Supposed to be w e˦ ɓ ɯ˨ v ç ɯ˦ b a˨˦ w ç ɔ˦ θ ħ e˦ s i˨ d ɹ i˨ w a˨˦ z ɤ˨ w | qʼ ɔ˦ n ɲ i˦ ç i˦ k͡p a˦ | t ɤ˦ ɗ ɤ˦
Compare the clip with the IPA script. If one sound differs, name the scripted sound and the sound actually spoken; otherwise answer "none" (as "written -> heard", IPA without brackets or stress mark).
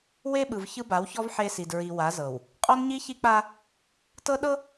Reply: θ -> v